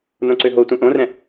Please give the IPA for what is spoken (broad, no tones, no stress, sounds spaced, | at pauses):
n õ ǀ ø ɦ o tʷ ɛ̃ ʔ õ r ɛ̃